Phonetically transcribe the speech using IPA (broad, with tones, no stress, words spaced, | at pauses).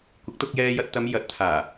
kʷɪ˨˥k̚t̪ʊ˧k̚jɛː˧jɐ˧t̚ t̪ɐ˨˧m jɐ˨˥t̚t̪ʰaː˨˩